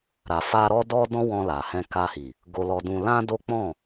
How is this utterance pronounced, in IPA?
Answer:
ɾ a˨ f a˧ ɾ ɔ˦ d ɔ˦ d ɔ̃˦ w ɔ̃˧ l a˨ h ɛ̃˧ k a˧ h i˨ | ɡ o˧ l ɔ˧ d ũ˧ l ã˦ d o˦ k͡p ɔ̃˦˨

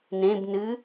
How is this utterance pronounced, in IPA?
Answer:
n ẽ b n ɨ

